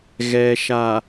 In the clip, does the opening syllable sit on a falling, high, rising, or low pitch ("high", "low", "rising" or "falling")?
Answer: low